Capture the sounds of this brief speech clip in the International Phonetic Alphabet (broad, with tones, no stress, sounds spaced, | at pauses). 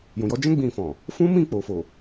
j ũ˨ j ɔ˧ d͡ʒ ɛ̃˦ ɡ͡b ĩ˧ f ɔ̃˨ | f ũ˦ m ĩ˦˨ k͡p o˨ f o˨